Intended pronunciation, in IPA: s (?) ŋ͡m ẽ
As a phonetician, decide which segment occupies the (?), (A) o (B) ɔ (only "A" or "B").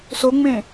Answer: A